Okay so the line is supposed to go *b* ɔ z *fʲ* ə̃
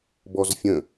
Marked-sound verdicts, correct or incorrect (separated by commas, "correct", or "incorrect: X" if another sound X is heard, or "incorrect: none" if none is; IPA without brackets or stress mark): correct, correct